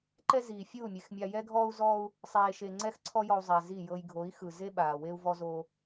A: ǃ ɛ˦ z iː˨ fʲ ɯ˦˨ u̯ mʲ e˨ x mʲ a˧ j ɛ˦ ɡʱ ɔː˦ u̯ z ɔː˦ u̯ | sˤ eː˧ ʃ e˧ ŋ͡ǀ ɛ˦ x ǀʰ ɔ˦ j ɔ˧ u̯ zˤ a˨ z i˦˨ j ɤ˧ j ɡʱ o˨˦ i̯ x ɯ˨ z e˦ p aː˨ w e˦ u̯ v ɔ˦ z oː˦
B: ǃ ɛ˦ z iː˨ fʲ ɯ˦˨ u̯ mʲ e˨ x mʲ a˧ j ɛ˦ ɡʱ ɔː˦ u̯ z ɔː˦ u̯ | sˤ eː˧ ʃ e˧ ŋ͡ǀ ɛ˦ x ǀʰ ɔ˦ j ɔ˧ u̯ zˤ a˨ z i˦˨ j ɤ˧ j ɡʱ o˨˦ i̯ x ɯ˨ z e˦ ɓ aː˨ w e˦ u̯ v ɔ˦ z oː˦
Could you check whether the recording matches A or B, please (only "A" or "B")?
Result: B